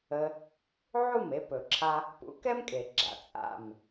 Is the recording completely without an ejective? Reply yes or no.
no